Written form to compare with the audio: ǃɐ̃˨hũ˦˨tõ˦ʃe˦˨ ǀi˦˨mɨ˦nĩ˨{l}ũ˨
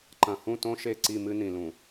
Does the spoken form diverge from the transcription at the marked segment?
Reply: no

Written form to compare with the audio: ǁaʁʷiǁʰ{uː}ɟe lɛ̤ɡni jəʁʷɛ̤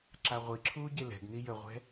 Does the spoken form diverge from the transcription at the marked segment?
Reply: no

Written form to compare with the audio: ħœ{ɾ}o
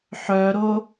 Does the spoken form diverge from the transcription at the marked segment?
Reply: no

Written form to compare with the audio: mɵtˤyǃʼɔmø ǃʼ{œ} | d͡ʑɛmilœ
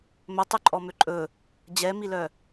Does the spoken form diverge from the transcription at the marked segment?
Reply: yes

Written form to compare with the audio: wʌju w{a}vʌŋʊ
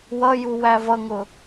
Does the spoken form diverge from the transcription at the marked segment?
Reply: yes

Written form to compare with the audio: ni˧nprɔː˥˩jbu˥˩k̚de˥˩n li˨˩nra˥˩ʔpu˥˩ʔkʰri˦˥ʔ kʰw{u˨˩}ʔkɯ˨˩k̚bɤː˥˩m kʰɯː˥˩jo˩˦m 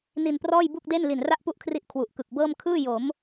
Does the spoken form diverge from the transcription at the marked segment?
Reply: no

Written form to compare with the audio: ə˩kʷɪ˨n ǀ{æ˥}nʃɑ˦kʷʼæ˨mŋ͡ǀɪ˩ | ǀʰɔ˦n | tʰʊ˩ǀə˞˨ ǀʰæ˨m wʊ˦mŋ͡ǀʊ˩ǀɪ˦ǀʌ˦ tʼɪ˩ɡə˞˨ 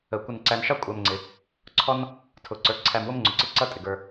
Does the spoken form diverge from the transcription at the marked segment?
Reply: yes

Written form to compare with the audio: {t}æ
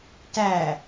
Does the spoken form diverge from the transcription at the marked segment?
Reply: no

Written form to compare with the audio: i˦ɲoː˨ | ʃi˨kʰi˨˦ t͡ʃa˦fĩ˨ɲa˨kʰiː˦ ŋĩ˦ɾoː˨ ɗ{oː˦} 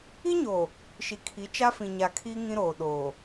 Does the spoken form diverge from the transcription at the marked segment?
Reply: yes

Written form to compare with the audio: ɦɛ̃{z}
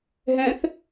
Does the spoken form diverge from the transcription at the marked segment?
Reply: yes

